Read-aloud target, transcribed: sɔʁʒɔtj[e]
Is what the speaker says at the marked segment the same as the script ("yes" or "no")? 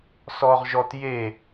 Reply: yes